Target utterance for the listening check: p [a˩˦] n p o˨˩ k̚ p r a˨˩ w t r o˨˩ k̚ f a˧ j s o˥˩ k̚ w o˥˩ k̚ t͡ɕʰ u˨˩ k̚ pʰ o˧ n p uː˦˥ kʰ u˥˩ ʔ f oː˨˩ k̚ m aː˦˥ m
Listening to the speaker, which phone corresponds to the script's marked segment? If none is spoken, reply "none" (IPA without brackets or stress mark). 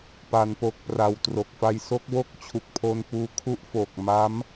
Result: a˩˦